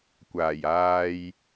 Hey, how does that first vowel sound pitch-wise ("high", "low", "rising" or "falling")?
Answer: low